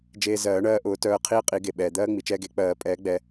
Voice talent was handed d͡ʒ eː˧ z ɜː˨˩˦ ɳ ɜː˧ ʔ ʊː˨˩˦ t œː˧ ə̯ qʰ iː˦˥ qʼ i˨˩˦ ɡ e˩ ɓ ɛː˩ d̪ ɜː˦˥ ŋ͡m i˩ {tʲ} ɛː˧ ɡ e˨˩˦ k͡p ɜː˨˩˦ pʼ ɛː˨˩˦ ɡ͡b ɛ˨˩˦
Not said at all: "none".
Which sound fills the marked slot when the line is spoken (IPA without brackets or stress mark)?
t͡ʃ